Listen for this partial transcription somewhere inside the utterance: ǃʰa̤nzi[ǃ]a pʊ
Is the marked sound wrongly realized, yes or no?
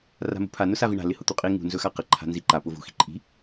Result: no